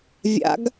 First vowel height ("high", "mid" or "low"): low